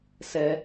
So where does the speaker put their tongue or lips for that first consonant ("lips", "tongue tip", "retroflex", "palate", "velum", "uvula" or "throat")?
tongue tip